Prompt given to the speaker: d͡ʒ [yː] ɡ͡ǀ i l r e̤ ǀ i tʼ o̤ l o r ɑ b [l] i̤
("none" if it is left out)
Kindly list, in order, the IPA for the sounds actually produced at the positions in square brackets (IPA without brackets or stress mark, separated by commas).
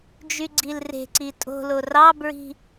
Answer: y, ɹ